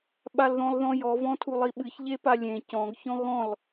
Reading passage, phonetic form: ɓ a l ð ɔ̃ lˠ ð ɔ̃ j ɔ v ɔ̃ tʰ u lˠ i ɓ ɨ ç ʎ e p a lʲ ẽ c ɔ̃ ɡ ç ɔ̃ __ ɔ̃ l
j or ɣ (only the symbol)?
ɣ